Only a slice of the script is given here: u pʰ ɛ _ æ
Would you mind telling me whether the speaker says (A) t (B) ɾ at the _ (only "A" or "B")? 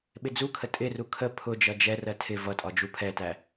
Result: A